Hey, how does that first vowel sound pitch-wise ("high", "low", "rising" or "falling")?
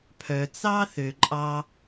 low